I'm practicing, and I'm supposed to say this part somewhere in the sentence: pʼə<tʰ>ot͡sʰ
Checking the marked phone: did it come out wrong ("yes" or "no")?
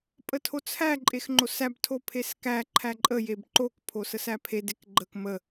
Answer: no